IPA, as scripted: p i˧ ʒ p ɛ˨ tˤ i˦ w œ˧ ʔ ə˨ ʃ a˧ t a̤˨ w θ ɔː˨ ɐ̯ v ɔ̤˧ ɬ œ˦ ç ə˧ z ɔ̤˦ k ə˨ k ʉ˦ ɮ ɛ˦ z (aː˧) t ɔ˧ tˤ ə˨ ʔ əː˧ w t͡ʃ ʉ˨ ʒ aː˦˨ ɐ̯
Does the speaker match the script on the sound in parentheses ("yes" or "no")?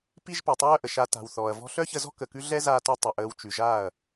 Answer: yes